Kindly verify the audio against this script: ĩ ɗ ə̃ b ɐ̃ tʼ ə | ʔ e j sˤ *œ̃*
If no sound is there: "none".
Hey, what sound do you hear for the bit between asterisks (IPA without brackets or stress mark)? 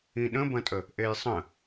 ə̃